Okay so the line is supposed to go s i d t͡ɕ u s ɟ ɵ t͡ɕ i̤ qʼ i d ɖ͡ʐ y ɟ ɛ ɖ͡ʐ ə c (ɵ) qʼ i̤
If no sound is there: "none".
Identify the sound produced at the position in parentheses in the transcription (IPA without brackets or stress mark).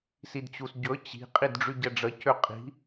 ø